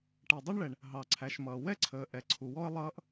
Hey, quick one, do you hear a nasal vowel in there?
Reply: no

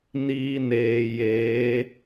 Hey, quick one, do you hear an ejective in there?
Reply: no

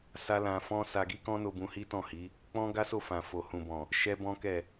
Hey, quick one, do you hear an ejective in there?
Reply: no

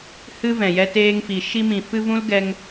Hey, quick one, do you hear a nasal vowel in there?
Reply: yes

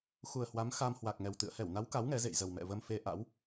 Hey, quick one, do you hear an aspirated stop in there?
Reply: no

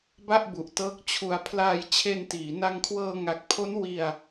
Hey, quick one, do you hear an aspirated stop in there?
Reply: yes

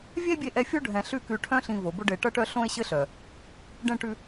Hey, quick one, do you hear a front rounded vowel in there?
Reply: yes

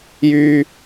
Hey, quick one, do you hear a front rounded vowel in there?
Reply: yes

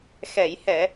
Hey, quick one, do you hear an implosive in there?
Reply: no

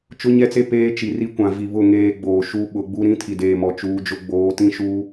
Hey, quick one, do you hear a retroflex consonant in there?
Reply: no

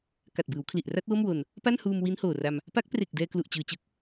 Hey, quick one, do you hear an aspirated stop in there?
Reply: yes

